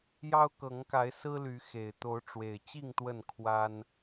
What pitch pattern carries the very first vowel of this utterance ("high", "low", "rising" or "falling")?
high